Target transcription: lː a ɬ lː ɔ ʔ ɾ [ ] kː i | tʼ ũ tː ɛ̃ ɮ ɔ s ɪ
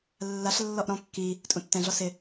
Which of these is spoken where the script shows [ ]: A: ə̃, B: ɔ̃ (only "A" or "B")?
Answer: B